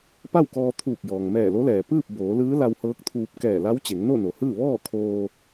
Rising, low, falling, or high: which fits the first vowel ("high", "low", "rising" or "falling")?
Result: falling